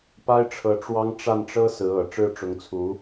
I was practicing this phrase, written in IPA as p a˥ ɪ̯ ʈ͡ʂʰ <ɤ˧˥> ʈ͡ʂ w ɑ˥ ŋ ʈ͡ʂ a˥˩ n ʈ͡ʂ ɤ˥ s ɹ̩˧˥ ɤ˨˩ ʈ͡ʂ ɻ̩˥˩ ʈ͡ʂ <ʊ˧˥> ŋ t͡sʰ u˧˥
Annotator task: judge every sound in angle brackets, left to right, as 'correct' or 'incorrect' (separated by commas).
correct, correct